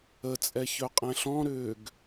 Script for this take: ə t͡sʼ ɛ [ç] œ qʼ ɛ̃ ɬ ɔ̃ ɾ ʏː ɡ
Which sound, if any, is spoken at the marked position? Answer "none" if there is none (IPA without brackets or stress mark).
ç